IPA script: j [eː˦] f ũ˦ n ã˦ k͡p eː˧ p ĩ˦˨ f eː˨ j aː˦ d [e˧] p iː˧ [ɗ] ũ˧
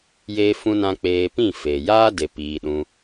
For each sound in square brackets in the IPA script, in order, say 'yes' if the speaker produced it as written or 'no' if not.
yes, yes, yes

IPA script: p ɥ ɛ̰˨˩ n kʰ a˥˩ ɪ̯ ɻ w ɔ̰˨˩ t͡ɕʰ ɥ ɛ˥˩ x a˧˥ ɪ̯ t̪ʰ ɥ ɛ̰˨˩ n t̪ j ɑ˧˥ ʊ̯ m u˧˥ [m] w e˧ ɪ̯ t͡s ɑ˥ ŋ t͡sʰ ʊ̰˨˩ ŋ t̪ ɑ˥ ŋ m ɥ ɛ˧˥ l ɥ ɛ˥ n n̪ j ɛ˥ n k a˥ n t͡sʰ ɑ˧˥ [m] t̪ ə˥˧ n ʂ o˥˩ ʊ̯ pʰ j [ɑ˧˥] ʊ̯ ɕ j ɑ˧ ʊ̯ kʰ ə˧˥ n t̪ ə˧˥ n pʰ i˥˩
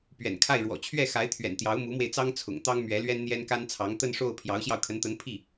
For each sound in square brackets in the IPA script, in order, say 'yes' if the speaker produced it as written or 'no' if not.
yes, no, yes

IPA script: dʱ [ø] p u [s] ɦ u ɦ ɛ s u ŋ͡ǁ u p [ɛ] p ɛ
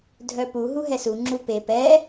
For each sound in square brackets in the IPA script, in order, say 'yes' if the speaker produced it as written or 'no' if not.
no, no, no

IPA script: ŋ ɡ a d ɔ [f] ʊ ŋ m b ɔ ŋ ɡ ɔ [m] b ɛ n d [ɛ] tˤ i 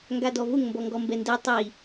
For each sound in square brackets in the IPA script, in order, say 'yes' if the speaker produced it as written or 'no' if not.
no, yes, yes

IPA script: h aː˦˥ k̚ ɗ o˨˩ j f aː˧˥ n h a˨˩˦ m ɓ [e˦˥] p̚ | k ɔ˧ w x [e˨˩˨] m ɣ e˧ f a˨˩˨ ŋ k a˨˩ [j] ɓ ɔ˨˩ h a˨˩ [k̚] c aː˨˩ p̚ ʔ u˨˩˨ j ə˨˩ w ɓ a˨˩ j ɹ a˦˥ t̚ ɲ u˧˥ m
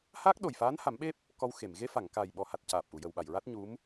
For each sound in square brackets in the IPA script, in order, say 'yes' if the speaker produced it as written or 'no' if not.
yes, yes, yes, no

